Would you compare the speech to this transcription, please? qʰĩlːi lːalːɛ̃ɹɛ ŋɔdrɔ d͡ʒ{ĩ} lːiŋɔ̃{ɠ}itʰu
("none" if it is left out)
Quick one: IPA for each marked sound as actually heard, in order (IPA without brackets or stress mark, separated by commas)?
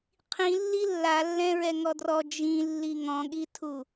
ĩ, ɠ